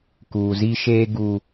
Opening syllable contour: low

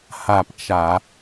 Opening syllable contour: falling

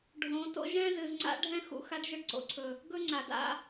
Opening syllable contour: rising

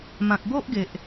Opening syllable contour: low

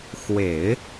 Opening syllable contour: low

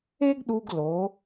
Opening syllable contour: high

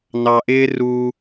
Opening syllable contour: low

